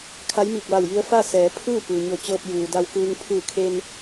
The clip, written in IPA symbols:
kʰ a˧˥ j m iː˧˩ k̚ ʋ a˧˩ w j i˧ ə̯ f a˥˨ s ɛː˩˧ pʰ ɯː˥˨ p ɯː˩ ɲ o˧˩ t͡ɕ ɤː˧ p̚ j uː˩ d a˧ w k ɯː˧ ŋ pʰ ɯː˧˩ kʰ e˧ n

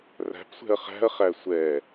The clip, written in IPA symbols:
r æ̤ p sʷ ɛ̤ ɐ̯ χ æ̤ ɐ̯ χ æ sʷ ɛ

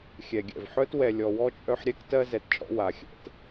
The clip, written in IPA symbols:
xʲ ɛ˩ ɡʲ ɛ̰˩ v ħ œ˥ t w ɛ˨ lʲ ɔ˨ w ɔ˥ t͡ʃʼ œ˦ ħ ɾʲ ɛ˥ k t ɜ˥ z ɛ˨ t t͡ʃʼ ɔ̰˦ w a˩ xʲ ɛ̰˩ t

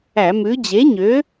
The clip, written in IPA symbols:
æ˧˩˧ m ʉ˨˥ d͡ʑ e˨˥ ɲ ø˨˥

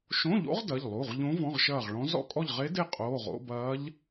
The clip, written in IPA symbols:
ʃ õ˧˥˧ ʎ o̰˧˥ ʁ d ɐ˩˧˩ ʎ lˠ u˩˧˩ ʁ ʎ õ˧˥ v ɔ̃˧˥˧ ʁ ʃ ɐː˦˨ ʁ ɭ ɔ̃˧˥ z ɔ̰˦˨ kʼ ɔ˦˨ ʎ ʁ e˧˥ d e˦˨ qʼ oː˩˧˩ ʁ o̰˧˥˧ b ɐː˧˥ ʎ

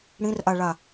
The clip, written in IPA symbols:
ɽ ĩ r ʔ a ɭ a

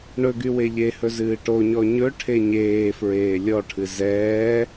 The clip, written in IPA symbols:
ɳ ɵ ɡ y w e ʎ e h ɵ z ɨː ʈ o ɲ ɔ ɲ ɵ ʈʰ e ɲ eː f ɹ eː lʲ ɔ ʈʰ ɨ z ɛː

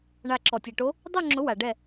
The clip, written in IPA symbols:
ɳ a˧˩ ǁ ɔ˩ tʲ ɛ˩ ʈ o˨˦ | dˤ o˥˧ ŋ͡ǁ ʊ˨˦ w a˩ ɖ ɛ˧˩

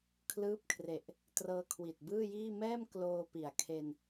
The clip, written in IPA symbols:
kʰ l ɯː˦˥ p̚ kʰ r e˨˩ ʔ | t r ɤː˧ kʰ w i˨˩ t̚ b ɯː˥˩ j iː˥˩ m ɛː˥˩ m k l oː˧ p i˨˩ a̯ kʰ e˧ n

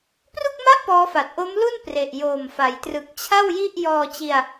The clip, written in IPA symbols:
p r u˥˩ k̚ m a˥˩ ʔ p ɔː˦˥ f a˨˩ t̚ ʔ o˦˥ m l u˥˩ n p r e˨˩ ʔ j oː˨˩ m f a˩˦ j t r ɯ˨˩ k̚ t͡ɕʰ a˥˩ w j i˥˩ ʔ j ɔː˧ t͡ɕ i˧ a̯

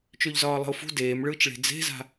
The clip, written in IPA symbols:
t͡ʃ ø ʎ z ɒː lˠ ə̤ ʊ̯ f ṳ d eː m ɭ ɯː t͡ʃ ɭ e̤ d͡z e̤ z a̤

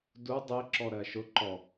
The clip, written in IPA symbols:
d u dˤ e ǁ ɔ ɾ ɜ ʃ ʊ ǃ ɔ

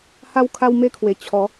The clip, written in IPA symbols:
h a˧ w kʰ a˧ w m e˧ kʰ w e˨˩ t͡ɕʰ ɔ˨˦

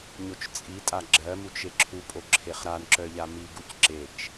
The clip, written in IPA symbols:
ɲ o t͡ʃ t͡sʼ i tʼ a ɡ͡ǁ ɜ m u t͡ʃ e ǁʰ u pʼ o ǁʰ e χ ɾ a n ǁ œ ʎ a m i ɡ u c ǁ e t͡ʃ

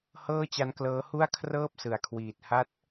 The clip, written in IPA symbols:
h ɤː˥˩ t͡ɕ a˦˥ n k l ɤː˦˥ h u˥˩ a̯ kʰ r ɤː˥˩ p̚ s ɯ˩˦ a̯ kʰ w iː˨˩ t̚ h a˥˩ t̚

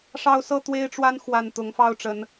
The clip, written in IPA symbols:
ʂ ɑ˦ ʊ̯ s ɤ˦ t̪ w e˦ ɪ̯ ʈ͡ʂ w a˦ n x w a˨˩ n t̪ ʊ˨˦ ŋ f ɑ˦ ʊ̯ ʈ͡ʂ ə˨˦ n

